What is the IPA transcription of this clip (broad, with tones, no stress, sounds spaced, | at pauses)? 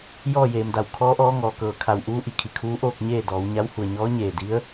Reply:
j ɔː˥˨ j eː˩ m d a˧˩ w kʰ ɔː˧˥ ʔ ɔː˧˥ ŋ ɔː˩ k ɤː˩˧ kʰ a˩ w ʔ uː˧˥ ʔ i˩˧ kʰ i˩ kʰ uː˧˥ ʔ oː˥˨ k̚ ɲ eː˥˨ d ɔː˩˧ w ɲ a˧˥ w h u˧˩ ə̯ ɲ ɔː˧˥ ɲ eː˧˩ d i˧˥ ə̯